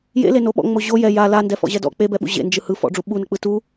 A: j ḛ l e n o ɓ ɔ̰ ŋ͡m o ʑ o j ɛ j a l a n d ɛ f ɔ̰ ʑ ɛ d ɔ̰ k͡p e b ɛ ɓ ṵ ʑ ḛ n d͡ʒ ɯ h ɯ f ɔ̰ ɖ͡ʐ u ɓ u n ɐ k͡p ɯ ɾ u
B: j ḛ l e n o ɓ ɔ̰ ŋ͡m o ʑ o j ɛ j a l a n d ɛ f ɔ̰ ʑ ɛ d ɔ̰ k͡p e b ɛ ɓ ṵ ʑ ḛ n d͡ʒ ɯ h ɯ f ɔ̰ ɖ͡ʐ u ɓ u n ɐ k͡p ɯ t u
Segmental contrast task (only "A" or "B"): B